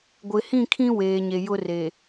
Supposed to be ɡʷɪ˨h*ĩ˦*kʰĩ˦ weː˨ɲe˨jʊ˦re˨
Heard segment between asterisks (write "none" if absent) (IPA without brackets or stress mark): ĩ˦˨